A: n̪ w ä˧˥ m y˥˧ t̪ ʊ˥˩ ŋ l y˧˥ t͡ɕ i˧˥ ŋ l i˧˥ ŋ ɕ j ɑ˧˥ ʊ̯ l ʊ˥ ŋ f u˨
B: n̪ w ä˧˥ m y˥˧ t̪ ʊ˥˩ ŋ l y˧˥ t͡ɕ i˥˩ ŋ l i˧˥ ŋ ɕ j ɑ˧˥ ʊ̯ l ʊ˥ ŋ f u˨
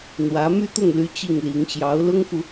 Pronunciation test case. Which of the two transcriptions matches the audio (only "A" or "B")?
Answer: B